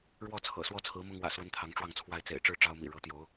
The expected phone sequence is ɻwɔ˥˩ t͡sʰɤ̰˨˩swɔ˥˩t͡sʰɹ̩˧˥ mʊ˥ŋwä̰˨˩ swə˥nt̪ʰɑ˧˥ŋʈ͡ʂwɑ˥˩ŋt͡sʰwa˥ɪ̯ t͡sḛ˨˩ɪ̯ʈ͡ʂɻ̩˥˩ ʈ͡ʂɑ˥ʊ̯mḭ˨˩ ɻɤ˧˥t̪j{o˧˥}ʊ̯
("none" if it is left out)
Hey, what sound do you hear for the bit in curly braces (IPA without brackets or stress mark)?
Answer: o˧˥